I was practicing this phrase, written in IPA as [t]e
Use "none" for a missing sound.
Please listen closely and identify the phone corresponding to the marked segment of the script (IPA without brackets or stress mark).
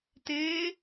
t